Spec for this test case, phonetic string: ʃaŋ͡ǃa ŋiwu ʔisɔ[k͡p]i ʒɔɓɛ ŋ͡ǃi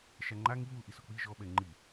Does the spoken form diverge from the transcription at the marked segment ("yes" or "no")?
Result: no